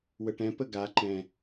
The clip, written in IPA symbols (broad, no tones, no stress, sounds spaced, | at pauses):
w ə ʈ ɛ̃ p ə ɡ a ǃ ɛ̃